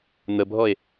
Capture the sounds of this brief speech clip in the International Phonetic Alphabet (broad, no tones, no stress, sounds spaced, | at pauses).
n̪ ə bʱ ɔ e̯